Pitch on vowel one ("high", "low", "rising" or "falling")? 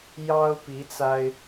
high